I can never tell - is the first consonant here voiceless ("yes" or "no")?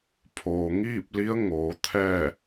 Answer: yes